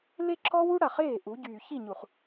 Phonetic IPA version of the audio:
l e˦ ǁʰ ɔ˦ w u˦ ɽ a˨ χ eː˦˨ ʔ u˨˦ ɟ yː˨ ç i˦˨ ɲ u˨ χ

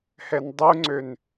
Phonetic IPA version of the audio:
h ɛ n dˤ u ŋ͡ǀ ø n

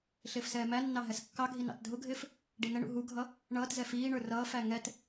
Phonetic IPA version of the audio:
ɬ ɪː f s ɛː m æ nː ɑ ɦ ɛ s kː ɑ ɡʱ i n ɑ̰ t dʱ ʊ ɡʱ ɪː f | ɖ i n ə ɳ ṵ ɦ u ɡʱ ʌ | ɳ ʌː t z ɛ f iː ɳ ə˞ r ʌː f æ ŋ ɛ t

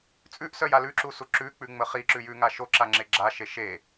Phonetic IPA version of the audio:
t͡sʼ ʉ ʔ s œ j a l ʉ ǁ u s u ǁ ʉ k͡p ʉ ŋ͡m ə χ i ǁ ʉ j ʉ ŋ a ʃ o ǁ a ŋ͡ǁ e ɡ͡ǁ a ʃ e ʃ e

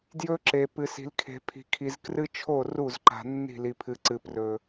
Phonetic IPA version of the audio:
d j ɵ˦ ǁ e˨ p ɨ˨ s i̤˨ l kʰ e̤˨ pʰ i̤˨ kʰ i˨ z k r ɨ˦ t͡ʃʰ o˦˨ r u˦˨ z ǃ a̤˨ nː i̤˦˨ l i˨ pʰ ɨ˨ ǀ ɨ˨ p r ɵ˨

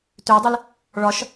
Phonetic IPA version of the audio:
t ø dˤ ɨ l | ɭ ɒ ʃ

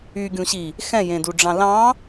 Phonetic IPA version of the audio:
y ɡʲ ũ ɕ i | x ɛ̃ j ẽ d u ɖ͡ʐ ɑ̃ l ɑ̃

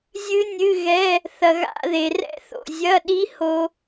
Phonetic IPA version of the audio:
zʲ ɨ˦˥ nʲ ɨ˧˥˧ ɣ ɛ˧˥˧ | θ ɐ˨ ɣ a̰˧˥˧ ð e˨ r ɛ̰˦˥ θ o̰˨ zʲ ɐ˧˥˧ ɗ i˦˥ h o˦˥

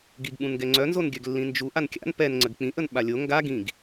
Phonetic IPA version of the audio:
ɡ i ɡ ɓ ũ n ɡ ɛ ŋ͡ǀ œ n z o n ɡʲ œ ɡ lː ĩ n d͡ʒ u ʔ a n kʲ a̰ n p ɛ n ŋ͡ǀ ə ɡ k͡p ĩ ʔ ə n ɓ a lʲ o ŋ ɡ a ɡ ĩ ɡ

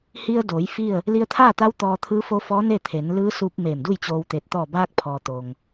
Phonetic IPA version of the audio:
h i˧ ə̯ d oː˩˧ j f i˥˨ ə̯ | l i˧ ə̯ t̪ʰ aː˥˨ t̪ a˧˥ w t̪ ɔː˧ t̪ʰ ɯː˧˥ f o˧˥ f ɔː˧˥ n e˥˨ t̪ʰ e˩˧ n l ɯː˧˥ s u˧ p̚ m eː˧˩ m d u˥˨ j t͡ɕ oː˧ w t̪ e˧˩ t̚ t̪ ɔː˧˩ b aː˧ k̚ pʰ ɔː˩ t̪ o˩ ŋ

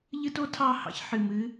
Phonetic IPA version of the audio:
ʎ ɨ˥ t o˥ tʰ ɑ˥˨ h ɑ̰˥ ç ħ ɨ˨˩ m ɨ˨˥

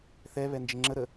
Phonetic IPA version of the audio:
θ ɛ β ɛ n d͡ʒ ɪ ŋ͡ǁ ə ɾ ə

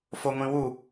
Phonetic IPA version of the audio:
f o ŋʷ ĩ w u

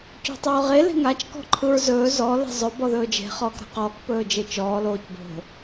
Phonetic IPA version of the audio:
c o̤ tˤ oː ʁ e l e̤ ŋ a t͡ʃ k ɔ̤ ǃʰ ɯ ɹ z ɵː z ɔ l e̤ zˤ ɵ b ɔ ð ɵː d͡ʒ e̤ χ ɔː k ɾ a̤ q ɔː k p ɵː d͡ʒ e t͡ʃ ɔː l oː c b o̤

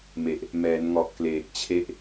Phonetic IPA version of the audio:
m e˨˩ ʔ | m ɛː˩˦ n ŋ ɔ˨˩ ʔ k l eː˨˩ k̚ t͡ɕʰ e˦˥ ʔ

